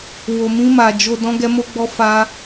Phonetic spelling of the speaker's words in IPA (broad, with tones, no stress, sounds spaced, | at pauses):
w o˨ m ĩ˧ m a˨ d͡ʒ o˨ d ɔ̃˧ ɡ ɛ˧ m o˧ ɡ͡b ɔ˧ f a˧